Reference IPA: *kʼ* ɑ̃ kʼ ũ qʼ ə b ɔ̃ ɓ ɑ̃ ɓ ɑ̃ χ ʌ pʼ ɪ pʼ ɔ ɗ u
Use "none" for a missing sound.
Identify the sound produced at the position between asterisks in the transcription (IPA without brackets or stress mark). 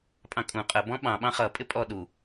pʼ